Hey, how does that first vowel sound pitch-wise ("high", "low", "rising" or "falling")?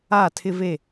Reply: falling